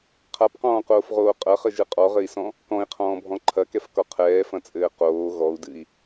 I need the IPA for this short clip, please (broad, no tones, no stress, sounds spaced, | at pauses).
qʰ a p q ɔ̃ː q oː f ʁ oː qʼ ɐ χ ɘ ʒ ɨ qʼ ɔ ʁ ɘ i̯ s ɔ̃ | k ɔ̃ i̯ qʰ ɔ̃ː bʱ ɔ̃ ǃʰ ɐ k ɛ f k ɔ qʰ ɛː f ɐ̃ t͡sʼ ɘː q oː ɣ ɔ u̯ d ɨ i̯